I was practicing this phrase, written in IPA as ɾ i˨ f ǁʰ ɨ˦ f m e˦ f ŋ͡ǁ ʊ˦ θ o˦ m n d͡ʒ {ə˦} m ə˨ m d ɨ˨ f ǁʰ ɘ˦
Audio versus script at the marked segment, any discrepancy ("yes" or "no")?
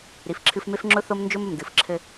yes